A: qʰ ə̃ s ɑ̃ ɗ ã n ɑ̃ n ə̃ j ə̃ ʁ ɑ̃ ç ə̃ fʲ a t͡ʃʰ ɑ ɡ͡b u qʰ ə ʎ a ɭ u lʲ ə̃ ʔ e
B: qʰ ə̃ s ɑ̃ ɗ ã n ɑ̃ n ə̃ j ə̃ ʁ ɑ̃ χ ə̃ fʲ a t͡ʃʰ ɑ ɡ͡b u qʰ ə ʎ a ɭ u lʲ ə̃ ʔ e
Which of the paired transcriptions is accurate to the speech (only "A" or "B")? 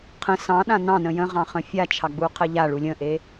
B